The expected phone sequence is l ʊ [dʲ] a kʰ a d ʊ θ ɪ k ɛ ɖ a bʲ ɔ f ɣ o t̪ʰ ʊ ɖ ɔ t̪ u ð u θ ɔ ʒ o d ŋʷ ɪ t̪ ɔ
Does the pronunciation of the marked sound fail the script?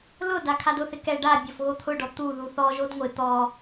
yes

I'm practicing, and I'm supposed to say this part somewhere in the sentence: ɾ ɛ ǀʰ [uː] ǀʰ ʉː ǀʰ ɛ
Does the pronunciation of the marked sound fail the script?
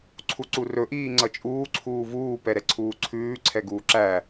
no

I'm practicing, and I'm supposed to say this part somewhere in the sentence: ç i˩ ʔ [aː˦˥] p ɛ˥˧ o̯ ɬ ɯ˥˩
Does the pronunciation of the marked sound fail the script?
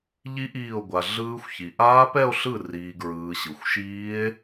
no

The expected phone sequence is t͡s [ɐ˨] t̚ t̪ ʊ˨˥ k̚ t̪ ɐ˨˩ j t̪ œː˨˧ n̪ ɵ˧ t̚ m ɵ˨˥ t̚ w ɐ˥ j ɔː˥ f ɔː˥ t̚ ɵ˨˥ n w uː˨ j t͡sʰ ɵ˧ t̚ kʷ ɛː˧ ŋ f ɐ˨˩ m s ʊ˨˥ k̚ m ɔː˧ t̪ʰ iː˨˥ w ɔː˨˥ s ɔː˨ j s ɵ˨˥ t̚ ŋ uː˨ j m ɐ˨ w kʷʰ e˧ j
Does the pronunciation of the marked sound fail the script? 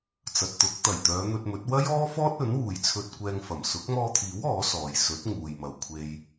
no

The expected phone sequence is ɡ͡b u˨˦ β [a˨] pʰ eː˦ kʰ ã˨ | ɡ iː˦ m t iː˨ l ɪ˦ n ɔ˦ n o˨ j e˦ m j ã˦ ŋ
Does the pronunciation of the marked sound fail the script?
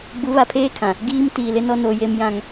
no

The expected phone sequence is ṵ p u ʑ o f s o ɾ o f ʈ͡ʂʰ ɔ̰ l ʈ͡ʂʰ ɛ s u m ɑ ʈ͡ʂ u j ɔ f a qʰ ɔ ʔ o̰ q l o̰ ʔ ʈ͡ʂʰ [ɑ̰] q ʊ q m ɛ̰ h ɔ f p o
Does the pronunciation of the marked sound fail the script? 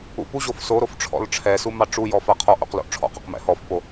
yes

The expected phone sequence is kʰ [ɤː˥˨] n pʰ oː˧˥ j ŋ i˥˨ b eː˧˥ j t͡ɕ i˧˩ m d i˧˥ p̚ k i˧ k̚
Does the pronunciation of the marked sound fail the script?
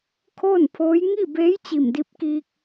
yes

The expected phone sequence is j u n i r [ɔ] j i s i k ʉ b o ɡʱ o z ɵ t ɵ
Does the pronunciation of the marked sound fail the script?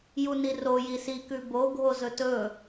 yes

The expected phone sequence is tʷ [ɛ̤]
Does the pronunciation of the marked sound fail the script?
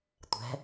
no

